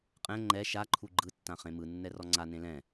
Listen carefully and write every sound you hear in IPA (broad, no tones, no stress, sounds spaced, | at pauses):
qʼ ɛ̃ ŋ͡ǃ ɛ ʃ a ǃʰ u ɡ͡ǃ ɯ tː ã χ ẽ m ɯ nː ɛ r ɔ ŋ͡ǀ a n ẽ l ɛ̃